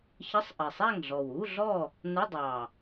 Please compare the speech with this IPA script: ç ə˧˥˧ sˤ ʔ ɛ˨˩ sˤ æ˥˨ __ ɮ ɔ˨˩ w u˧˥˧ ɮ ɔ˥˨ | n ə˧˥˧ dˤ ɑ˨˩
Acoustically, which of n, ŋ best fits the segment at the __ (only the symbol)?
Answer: ŋ